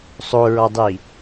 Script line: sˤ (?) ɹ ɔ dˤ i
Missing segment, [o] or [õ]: o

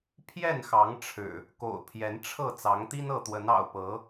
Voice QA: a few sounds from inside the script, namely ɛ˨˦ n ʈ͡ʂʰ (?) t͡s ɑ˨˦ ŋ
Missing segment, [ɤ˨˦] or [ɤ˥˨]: ɤ˥˨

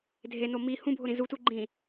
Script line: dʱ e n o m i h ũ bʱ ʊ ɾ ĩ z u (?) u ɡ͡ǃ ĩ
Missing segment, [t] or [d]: t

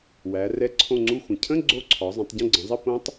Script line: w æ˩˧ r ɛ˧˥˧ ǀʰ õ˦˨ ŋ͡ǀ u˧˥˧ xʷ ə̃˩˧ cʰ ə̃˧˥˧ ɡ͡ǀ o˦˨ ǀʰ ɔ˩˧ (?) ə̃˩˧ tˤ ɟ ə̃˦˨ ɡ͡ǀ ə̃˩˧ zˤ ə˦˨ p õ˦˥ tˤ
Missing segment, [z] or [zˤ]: zˤ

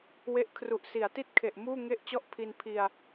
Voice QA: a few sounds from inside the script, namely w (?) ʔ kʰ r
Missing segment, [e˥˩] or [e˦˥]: e˦˥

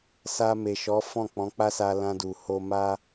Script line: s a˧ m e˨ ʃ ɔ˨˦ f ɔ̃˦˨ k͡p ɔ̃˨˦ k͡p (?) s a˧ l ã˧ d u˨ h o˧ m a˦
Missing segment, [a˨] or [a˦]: a˦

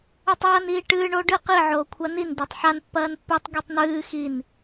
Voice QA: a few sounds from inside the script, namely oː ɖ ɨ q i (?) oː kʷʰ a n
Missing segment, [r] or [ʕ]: ʕ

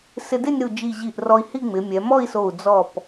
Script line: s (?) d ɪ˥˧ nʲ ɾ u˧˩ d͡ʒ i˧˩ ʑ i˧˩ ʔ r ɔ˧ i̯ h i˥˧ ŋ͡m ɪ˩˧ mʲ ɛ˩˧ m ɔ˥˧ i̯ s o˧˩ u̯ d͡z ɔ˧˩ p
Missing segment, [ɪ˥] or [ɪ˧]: ɪ˧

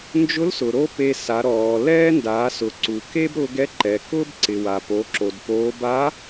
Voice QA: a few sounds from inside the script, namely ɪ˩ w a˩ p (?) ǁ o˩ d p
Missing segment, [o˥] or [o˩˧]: o˩˧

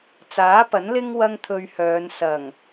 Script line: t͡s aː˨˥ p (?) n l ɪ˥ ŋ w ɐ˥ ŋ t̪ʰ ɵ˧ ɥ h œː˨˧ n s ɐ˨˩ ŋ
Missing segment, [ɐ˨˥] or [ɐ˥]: ɐ˨˥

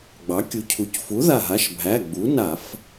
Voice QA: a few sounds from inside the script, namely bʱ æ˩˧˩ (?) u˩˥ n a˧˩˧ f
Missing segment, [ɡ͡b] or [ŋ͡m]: ɡ͡b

